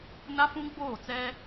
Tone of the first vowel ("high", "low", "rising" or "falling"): high